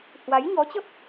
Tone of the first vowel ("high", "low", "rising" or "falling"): rising